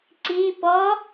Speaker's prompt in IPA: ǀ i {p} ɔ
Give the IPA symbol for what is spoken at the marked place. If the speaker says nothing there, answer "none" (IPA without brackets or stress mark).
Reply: p